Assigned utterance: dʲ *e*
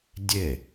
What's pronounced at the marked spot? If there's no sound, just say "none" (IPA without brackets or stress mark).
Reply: e